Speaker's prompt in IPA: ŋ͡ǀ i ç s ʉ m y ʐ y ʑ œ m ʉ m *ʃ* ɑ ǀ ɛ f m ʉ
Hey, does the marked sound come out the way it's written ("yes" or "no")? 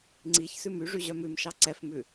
yes